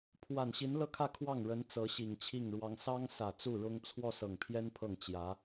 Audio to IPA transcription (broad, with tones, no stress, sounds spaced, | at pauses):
pʰ w a˨˩ n ɕ i˧˥ n l ɤ˥˧ kʰ ä˥˧ kʰ w ɑ˥˩ ŋ ɻ ə˧˥ n t͡s ɤ˧˥ ɕ i˨˩ ŋ t͡ɕʰ i˥˩ ŋ ɻ w ɑ˥ ŋ s ɑ˥ ŋ s ä˨˩ t͡s u˥˩ ɻ ʊ˥ ŋ t͡sʰ w ɔ˥˩ s ɤ˨˩ ŋ pʰ j ɛ˥ n pʰ ɤ˥˩ ŋ t͡ɕ j ä˧˥